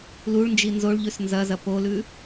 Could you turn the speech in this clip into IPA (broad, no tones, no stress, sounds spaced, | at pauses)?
l u ɭ n d͡ʒ i n z o ɭ ʎ ʉ s n z ɐ z ɐ p o l ʉ